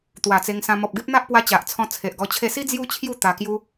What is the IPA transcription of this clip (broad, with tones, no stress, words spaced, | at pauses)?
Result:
t̪wa˨˩t͡se˧ŋsã˧ mɔ˨p̚ɡe˦p̚n̪a˦ʔpwa˧ t͡ɕa˨ʔt͡sʰɔ̃˧ t͡sʰe˨ʔɡɔ˧t͡ɕʰe˥˧ si˦ d͡zju˦t͡ɕʰju˥˧ t̪a˧kju˦